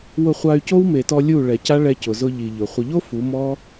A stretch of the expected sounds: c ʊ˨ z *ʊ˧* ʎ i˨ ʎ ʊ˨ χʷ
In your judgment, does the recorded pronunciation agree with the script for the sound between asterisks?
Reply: yes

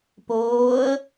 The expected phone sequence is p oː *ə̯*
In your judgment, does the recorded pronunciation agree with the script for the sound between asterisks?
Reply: yes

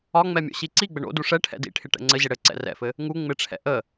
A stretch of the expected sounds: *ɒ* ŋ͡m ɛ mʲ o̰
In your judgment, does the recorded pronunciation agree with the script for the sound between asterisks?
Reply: yes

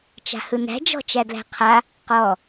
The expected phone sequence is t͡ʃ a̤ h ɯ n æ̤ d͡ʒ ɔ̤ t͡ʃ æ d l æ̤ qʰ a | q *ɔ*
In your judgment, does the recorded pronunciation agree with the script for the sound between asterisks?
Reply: yes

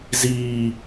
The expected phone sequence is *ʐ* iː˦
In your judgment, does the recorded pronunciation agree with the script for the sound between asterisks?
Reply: no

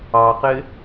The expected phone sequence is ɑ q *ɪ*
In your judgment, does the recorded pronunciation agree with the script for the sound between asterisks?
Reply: yes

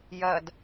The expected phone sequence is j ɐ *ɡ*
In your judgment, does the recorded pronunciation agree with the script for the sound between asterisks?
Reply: no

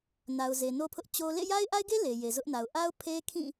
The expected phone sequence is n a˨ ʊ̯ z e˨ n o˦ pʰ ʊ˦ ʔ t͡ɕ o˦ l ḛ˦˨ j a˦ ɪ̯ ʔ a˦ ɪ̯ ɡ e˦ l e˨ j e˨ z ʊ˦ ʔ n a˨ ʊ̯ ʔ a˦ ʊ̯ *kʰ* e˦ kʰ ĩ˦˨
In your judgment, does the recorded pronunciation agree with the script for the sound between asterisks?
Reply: no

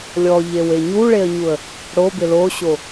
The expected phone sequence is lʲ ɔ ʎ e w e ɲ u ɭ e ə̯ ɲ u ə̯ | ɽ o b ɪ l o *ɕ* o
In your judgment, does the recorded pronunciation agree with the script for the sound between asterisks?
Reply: yes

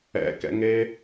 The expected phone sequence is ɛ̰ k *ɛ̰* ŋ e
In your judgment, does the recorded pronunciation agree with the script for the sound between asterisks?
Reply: yes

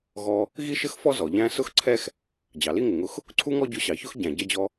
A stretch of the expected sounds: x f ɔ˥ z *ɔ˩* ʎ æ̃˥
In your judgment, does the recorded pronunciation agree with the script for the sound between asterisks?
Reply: yes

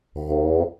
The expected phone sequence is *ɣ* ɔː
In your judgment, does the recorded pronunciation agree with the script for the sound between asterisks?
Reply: yes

